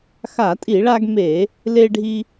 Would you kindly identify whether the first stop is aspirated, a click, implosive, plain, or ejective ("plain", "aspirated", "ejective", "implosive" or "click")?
ejective